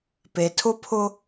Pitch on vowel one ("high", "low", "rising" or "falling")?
low